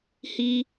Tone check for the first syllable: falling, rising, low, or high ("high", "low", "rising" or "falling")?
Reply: high